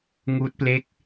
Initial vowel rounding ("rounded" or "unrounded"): rounded